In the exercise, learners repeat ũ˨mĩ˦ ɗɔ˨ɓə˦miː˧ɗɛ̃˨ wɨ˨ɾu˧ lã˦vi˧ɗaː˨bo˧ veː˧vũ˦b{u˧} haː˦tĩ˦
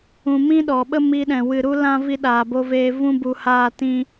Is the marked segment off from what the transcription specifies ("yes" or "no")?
no